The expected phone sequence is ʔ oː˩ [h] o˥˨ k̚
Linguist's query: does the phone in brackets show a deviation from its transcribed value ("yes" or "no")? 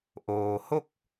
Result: no